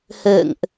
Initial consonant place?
glottal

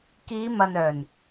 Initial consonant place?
velar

